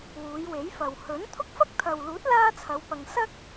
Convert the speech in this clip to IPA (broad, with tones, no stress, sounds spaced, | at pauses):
w uː˨˧ j w e˨˥ j f ɐ˨ w h ɵ˨˥ n t̪ʰ ʊ˥ k̚ f ɐ˥ k̚ t̪ʰ ɐ˨ w l uː˨˥ t̚ l aː˥ t͡sʰ ɐ˨˧ w p ɐ˨ ŋ s ɐ˥ k̚